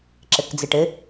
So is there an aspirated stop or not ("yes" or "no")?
no